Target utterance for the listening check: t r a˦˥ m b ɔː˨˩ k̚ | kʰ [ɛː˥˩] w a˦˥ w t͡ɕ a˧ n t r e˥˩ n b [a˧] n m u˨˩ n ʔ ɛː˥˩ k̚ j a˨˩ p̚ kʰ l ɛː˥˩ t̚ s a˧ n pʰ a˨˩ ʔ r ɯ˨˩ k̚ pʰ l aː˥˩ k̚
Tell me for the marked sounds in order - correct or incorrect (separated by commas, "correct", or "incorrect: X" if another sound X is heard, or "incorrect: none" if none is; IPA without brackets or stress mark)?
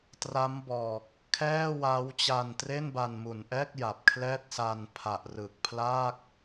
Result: correct, correct